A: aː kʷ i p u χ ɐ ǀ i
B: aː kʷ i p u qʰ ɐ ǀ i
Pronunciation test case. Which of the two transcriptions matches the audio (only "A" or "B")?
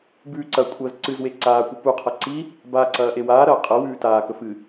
B